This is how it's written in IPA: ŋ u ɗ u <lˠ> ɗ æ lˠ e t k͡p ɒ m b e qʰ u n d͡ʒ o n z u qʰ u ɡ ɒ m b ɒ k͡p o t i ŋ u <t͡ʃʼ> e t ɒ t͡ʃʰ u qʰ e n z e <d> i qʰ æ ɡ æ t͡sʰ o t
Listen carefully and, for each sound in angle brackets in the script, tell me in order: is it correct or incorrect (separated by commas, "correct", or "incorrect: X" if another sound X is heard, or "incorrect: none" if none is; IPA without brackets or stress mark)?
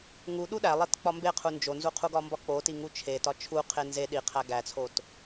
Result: incorrect: none, incorrect: t͡ʃʰ, incorrect: ɗ